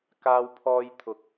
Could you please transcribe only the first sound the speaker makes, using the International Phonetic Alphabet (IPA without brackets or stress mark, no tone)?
k